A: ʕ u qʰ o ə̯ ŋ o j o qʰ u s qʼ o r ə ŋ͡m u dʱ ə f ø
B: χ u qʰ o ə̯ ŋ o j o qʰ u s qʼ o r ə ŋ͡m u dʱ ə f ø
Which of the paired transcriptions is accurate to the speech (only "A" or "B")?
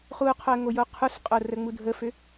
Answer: B